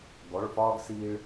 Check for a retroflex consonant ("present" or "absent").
present